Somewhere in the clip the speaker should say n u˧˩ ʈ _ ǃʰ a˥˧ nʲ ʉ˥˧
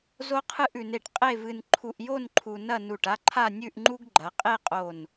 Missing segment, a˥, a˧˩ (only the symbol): a˥